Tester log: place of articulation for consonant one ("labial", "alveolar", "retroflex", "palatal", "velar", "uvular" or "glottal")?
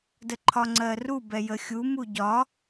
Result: alveolar